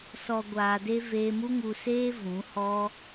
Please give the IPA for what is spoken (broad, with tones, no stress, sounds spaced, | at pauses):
s ɔ˨ ɡʷ aː˨ d e˧ v eː˧ m u˦ ŋ u˧ s eː˦ v ũ˨˦ h ɔ˦